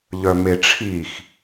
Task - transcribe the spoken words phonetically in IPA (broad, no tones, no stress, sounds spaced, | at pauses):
ʎ œ m e ʈ͡ʂʰ i x